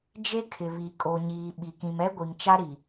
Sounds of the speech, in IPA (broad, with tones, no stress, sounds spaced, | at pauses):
d͡ʒ e˦ kʰ ɪ˨ β i˨ kʼ o˨ ɲ iː˨ ɓ i˨ k ĩ˨ m ɛ˦ ɡʷ i˨ ŋ t͡ʃ a˦ ɾ i˨